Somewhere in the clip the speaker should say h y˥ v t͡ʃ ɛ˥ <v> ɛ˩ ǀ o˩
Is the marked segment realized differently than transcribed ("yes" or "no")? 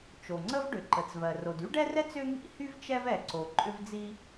no